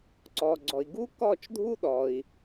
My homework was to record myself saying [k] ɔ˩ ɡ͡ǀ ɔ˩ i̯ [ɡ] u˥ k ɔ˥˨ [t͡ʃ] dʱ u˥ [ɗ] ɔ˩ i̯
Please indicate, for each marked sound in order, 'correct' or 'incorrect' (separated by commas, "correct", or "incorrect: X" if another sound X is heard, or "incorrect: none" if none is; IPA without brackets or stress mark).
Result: incorrect: ǀ, correct, correct, correct